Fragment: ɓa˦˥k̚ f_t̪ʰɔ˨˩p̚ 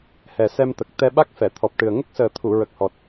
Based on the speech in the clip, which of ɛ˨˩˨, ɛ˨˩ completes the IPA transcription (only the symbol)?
ɛ˨˩˨